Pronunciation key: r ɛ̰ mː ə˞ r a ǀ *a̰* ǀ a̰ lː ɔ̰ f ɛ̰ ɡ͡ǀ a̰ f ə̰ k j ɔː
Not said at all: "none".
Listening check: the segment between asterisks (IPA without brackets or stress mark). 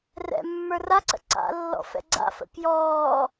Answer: ə̰